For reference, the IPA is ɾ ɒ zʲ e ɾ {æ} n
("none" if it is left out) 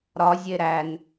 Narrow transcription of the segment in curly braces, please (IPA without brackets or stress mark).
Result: æ